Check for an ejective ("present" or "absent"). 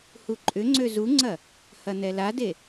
present